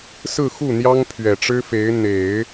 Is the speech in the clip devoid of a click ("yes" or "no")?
yes